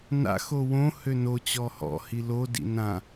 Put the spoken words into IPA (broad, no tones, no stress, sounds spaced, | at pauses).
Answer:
n a̰ x o w õ h ø n o t͡ɕ ɔ h ɔ̰ h i l o d ḭ n ã